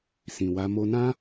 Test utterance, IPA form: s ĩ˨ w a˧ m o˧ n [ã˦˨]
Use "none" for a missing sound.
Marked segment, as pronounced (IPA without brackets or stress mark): ã˦